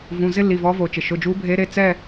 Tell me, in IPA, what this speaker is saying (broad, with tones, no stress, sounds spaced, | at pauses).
v ũ˩˧˩ z ɪ˥ lː i˩˧˩ v ɔ˧˥ v o˩ t͡ʃ ɪ˩ ʃ ʊ˩˧˩ d͡ʒ u˧˥ bʱ e˧˥ ɾ e˩˧˩ t͡s ɛ˦˨